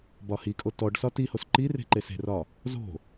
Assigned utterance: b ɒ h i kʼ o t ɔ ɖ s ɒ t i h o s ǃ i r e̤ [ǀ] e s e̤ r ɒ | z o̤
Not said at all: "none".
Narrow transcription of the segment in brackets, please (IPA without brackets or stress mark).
ǃ